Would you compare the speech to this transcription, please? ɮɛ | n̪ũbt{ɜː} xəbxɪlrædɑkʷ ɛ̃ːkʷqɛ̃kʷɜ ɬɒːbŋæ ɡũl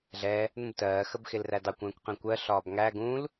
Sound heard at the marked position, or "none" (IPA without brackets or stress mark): ɜː